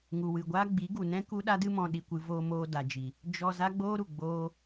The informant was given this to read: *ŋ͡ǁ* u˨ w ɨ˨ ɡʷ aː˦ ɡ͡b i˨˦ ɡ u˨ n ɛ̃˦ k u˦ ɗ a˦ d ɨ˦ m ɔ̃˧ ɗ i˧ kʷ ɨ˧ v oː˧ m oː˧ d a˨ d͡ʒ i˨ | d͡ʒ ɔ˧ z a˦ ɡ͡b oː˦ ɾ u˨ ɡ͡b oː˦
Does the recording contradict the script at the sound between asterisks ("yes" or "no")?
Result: yes